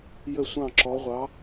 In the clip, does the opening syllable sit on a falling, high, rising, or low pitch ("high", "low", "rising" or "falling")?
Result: falling